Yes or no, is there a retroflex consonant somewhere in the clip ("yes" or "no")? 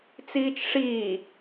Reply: yes